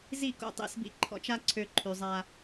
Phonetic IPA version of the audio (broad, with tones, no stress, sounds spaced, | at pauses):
z i˦˨ k o̰˧ tˤ ḭ˧ s b ḭ˧ ǃʰ ɔ̰˧ t͡ʃ a˦ ǀʰ ø˧ ǃʰ y˨ zˤ a˧